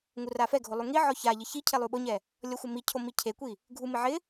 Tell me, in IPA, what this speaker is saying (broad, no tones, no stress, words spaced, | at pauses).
ŋurafɛɡʱo lˠuŋiʕɔ ça ʎɪçicʰe lˠuɓʊɲɛ | lʲɔxʷɪmicʰo micʰekʷi | ɡʱumɪ ʕɪ